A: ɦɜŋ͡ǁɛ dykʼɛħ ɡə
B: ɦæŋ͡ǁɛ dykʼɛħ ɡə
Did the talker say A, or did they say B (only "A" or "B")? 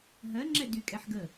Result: A